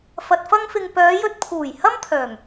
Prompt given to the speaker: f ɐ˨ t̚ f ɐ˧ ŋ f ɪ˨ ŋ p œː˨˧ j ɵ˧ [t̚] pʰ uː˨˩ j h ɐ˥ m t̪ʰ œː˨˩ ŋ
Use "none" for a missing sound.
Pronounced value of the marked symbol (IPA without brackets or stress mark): t̚